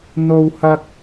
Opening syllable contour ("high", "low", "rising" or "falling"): high